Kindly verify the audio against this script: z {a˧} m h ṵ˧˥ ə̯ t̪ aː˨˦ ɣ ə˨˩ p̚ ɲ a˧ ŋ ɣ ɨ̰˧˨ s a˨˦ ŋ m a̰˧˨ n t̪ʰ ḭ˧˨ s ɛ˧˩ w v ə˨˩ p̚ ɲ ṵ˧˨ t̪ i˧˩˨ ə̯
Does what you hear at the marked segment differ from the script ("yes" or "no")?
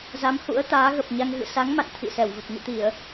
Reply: yes